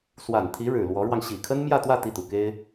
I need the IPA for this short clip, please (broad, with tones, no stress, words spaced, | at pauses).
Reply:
swa˨˩nt̪ʰi˧˥ɻɻ̩˨˩ lwɔ˧˥ɻwɑ˧ŋ ɕi˨˩kʰə˥nmjä˥˧t̪wä˥˧ t̪i˥˩t̪u˨˩ke˥ɪ̯